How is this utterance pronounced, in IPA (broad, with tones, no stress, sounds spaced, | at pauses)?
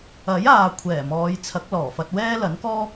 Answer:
ɐ˨˥ j aː˨ kʷʰ ɛː˨˩ m ɔː˨˧ j t͡sʰ ɐ˨˥ k̚ l ɔː˨˩ f ɐ˧ t̚ w ɛː˥ l ɐ˨˥ n k ɔː˥